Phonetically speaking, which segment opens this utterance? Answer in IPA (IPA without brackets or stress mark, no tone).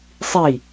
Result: sˤ